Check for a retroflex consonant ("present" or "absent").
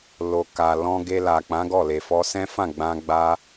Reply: absent